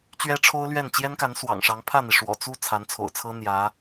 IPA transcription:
t͡ɕ ɥ ɛ˥ ʈ͡ʂʰ o˥ ʊ̯ l ɥ ɛ˥˩ n t͡ɕ j ɛ˥ n k a˧˥ n s w ɑ̰˨˩ ŋ ʂ ɑ˧˥ ŋ pʰ ä˥˩ n̪ i˩ ʂ w ɔ̰˨˩ t͡s u˥˩ t͡sʰ a˧˥ n t͡sʰ o̰˨˩ ʊ̯ t͡sʰ ɤ˥ n̪ j ä˧˥

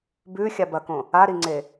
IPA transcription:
b ʉ xʲ a b ɐ k õ | a ɾ i ŋ͡ǀ e

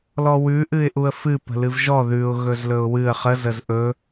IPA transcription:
l ɔ w ʉ ʔ ɨ ɪ̯ ʔ u ə̯ f ɨ p ə̤ l ɨ v ʒ ɔ ð ʉ ʊ̯ ɣ ɵ z l ɵ ʊ̯ w ɨ ə̯ χ ə z ə z ʔ ɵ

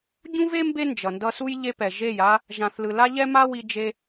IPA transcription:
ɟ ũ˦ v e˦ m b e˦ n d͡ʒ ʌ˨ n d ʌ˧ s u˦ j ʎ e˧ p ɛ˨ ʒ e˦˨ j a˦ | ʒ ã˨ θ l ɯ˨ l a˦ ʎ ɛ˦ m a˦ w i˧ d͡ʒ e˧

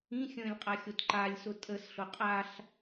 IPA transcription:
ĩ xʲ ə̃ː lʲ qʼ a xʲ o t ǃ a lʲ s ʊ tʼ ə s ɬ ʊ qʼ a ɬ

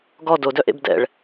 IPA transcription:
ɡ ɔ d o d œ ʔ ḛ b d ɛ̰ ɭ

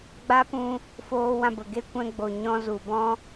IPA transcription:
ɡ͡b a˦ p ũ˧ | f oː˧ w ã˦˨ b ə˨ ɡ e˦ kʷ ɛ̃˧ ɡ͡b o˨ ɲ ɔ̃˧ z u˨ b ɔ̃˦

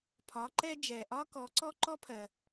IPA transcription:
pʰ ɒ˩˧ ǃ ɛ˧ d͡ʒ ɛ˩ ʔ ɒ˧ k ɔ˩˧ ǀ ɔ˥ ǃ ɔ˥ pʰ ɜ˩

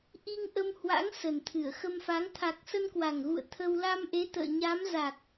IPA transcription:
ʔ i˧ ŋ ʔ ə˧ m h w a̰˧˥ ŋ s ə˨˩ n t̪ʰ ɨ˧˩ ə̯ x ə˧ m f a˨˦ ŋ t̪ʰ a˨˩ k̚ s ə˧ n k w a˨˩ ŋ ɣ ṵ˧˨ ə̯ t̪ʰ ə˧ w l a˧ m ʔ e˨˦ t̪ ə̰ː˧˨ ɲ a˨˦ m z a˨˩ k̚

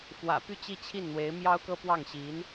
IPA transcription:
f w ä̰˨˩ p y˥˧ t͡ɕ i˥˧ t͡ɕʰ i˥˩ n n̪ w e˧˥ ɪ̯ m j ɑ˥ ʊ̯ k ɤ˥ p w ɑ˥˩ ŋ ɕ i˧˥ n

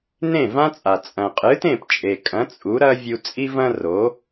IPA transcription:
n ẽ˥˩ v ã˥ t͡sʼ a˩ t͡sʼ ɐ̃˩ qʼ ɨ˩˥ t ẽ˥˩ p t͡ʃʼ e˩ kʼ ɐ̃˩˥ t͡sʼ u˩˥ ɾ ɐ˥ vʲ u˧ t͡sʼ i˥ v ɐ̃˥ r o˩˥

